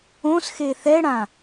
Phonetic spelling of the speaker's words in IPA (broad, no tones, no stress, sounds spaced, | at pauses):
õ s x e θ ɛ ɽ ã